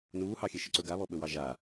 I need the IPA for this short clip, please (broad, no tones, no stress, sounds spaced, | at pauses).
n uː h ɑ xʲ e ʃ ə ǀ ɵ ɡ a β ɔ ɓ ɵ w ɑ ʒ a